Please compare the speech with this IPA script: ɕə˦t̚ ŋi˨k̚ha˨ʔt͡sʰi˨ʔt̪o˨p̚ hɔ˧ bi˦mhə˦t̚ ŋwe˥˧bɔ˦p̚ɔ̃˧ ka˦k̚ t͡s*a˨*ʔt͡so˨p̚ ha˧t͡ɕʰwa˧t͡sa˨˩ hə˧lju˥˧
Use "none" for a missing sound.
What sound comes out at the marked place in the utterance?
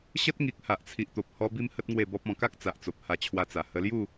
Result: a˨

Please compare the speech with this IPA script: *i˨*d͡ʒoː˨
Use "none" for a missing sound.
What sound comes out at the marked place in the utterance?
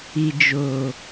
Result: i˨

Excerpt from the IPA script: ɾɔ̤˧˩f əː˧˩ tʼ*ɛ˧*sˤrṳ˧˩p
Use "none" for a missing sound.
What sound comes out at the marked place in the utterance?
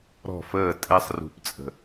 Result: ɛ˧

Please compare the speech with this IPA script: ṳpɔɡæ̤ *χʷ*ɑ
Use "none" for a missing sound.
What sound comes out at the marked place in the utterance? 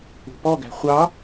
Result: χʷ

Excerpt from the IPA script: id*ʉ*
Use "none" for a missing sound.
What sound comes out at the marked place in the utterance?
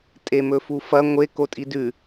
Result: ʉ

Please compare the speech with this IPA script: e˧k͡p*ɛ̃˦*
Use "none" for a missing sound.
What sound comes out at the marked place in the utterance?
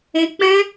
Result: ɛ̃˦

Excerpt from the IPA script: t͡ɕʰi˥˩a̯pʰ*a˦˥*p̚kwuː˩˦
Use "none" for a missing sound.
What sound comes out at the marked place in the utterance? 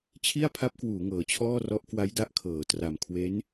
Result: a˦˥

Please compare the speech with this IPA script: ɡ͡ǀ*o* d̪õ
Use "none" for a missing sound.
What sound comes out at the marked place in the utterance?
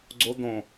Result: o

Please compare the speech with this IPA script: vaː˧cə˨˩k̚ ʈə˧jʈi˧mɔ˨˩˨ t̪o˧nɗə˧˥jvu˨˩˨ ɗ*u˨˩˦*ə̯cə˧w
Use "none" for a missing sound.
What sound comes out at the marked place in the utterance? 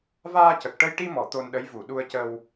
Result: u˧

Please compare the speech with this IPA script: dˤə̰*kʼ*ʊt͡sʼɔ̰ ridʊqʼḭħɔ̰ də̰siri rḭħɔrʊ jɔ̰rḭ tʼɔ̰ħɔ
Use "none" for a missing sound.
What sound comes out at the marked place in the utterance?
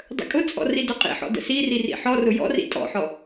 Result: kʼ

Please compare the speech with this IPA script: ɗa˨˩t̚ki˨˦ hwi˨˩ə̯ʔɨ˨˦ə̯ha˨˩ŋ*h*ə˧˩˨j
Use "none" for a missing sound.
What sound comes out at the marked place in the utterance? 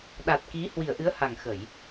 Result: x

